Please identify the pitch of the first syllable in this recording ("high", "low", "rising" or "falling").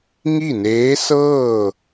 falling